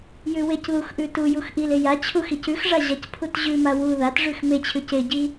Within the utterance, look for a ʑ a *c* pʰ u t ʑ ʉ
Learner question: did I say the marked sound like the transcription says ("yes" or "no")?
yes